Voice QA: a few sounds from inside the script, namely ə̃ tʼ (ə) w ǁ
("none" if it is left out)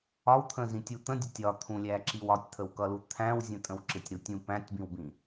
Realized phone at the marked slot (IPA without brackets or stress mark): ə̃